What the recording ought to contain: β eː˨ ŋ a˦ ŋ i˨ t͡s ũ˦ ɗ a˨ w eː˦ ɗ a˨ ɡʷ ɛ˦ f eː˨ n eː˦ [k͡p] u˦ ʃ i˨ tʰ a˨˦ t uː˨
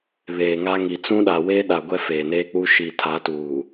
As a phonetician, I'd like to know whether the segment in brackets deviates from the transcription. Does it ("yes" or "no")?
no